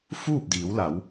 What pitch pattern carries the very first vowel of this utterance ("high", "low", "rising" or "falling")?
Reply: falling